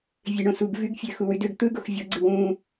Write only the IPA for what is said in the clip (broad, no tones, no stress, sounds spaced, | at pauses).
vʲ e ɳ õ s u ɡ v y ɡ fʲ øː x u w y d ø ɡ t̪ ɯ ɡ o x vʲ o ɡ͡ǀ ɯ w ũː